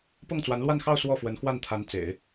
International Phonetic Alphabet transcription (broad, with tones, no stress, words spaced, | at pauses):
pɤ˥˩ŋt͡swa˧˥nlwa˥˧nxɑ˥˧ʊ̯ swɔ˥˩fwə˧˥nxwa˥˩nt̪ʰa˧˥n t͡sḛ˨˩˦ɪ̯